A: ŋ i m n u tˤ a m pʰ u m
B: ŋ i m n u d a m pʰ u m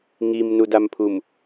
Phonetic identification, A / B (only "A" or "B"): B